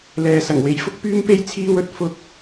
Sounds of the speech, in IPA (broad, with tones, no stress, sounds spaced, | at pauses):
l ɛː˨˧ s ɐ˨˩ ŋ w e˨ j f ʊ˥ k̚ p yː˥ m p e˥ j t͡sʰ iː˧ w ɵ˨ t̚ f ʊ˧ k̚